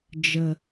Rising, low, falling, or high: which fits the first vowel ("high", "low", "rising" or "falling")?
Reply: low